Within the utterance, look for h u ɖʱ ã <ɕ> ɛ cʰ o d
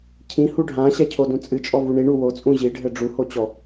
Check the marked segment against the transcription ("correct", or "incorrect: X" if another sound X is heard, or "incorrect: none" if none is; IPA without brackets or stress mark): correct